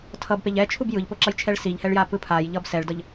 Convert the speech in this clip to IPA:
tʰ ʌ b p e ʎ ɛ t͡ʃʰ u b j ɯ ʎ p o ǁ ʌ j t͡ʃʰ ɛ ɭ s i ʎ h ɛ ɭ j a p ɯ pʰ a j ʎ ʌ b s ɛ ɭ d ʌ ʎ

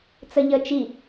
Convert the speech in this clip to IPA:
t͡s ə ʎ ə t͡ʃ i

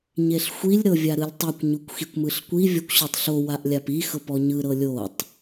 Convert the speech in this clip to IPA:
ɲ e ɬ xʷ i lʲ ɾ ɤ vʲ a ɾ ɯ lʲ tˤ ɯ kʷ ɲ u kʷ x i kʷ m ɯ ɬ kʷ i vʲ ɔ kʷ ɕ o tˤ ɬ o w a ʔ lʲ a p i x ɤ p ɔ ɲ ɯ ɾ ɤ lʲ o tˤ

